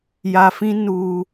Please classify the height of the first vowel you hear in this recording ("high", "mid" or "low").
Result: low